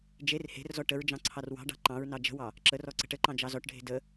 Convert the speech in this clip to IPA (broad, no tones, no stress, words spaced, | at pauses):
d͡ʒer he̤rzɔ ʈəɹd͡ʒɑ̃ ǀʰɑrwɑ̤ɖɑ̤ ǃɑ̃ɹnɑ d͡ʒə̤wɑ | ǁərɔ ǀə̤ʈəǃɑ̃ d͡ʒɑzɔʈɖʱe̤ də